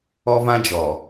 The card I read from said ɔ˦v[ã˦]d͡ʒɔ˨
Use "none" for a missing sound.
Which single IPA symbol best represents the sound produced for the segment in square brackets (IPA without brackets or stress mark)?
ã˦